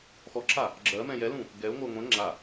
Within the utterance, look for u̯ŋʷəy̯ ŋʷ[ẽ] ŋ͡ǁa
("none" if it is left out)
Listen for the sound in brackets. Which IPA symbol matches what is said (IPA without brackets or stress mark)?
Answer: ɛ̃